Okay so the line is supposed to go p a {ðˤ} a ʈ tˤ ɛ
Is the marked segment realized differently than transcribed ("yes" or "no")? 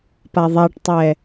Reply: no